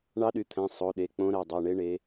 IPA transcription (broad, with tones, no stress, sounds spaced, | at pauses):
ɳ ɑ˧˥ ɗ y˩˧˩ t̪ʰ æ̃˩˧˩ sˤ o˩˧˩ ɗ e˩˧˩ k͡p õ˧˥ ɾ æ˩˧˩ dˤ ɑ˩˧˩ ɳ e˧˥ ɳ e˧˥